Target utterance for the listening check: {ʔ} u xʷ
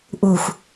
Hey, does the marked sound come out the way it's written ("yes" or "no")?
yes